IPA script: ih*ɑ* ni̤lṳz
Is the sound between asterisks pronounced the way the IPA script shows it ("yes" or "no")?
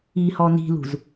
no